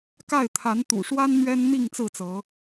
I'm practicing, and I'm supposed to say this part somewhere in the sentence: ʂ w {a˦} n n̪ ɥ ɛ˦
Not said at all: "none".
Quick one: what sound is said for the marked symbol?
a˦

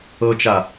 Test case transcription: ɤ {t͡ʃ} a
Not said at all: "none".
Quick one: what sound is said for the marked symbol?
t͡ʃ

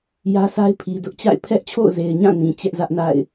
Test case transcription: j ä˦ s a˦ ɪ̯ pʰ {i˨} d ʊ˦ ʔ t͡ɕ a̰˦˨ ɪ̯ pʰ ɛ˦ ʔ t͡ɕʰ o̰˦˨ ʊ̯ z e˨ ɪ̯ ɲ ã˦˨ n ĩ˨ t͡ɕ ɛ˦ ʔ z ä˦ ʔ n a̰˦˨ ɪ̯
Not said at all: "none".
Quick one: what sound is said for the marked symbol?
i˨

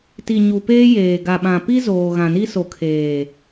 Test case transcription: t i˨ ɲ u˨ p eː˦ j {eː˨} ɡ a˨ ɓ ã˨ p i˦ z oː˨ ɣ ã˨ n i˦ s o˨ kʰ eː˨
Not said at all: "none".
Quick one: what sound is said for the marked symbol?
eː˨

